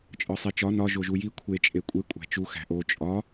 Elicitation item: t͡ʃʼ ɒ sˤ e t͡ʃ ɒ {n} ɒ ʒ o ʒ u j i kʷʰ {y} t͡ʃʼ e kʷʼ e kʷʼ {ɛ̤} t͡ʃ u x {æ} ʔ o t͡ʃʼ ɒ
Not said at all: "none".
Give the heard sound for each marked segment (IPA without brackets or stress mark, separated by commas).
n, e, æ̤, æ̤